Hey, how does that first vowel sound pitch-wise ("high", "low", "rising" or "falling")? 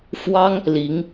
high